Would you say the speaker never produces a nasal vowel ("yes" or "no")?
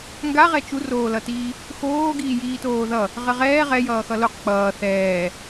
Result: yes